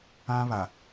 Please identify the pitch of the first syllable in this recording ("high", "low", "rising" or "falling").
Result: high